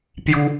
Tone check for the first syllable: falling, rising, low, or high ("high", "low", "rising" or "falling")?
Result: high